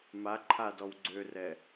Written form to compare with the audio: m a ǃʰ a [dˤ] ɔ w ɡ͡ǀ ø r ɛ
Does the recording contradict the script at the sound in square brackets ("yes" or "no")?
yes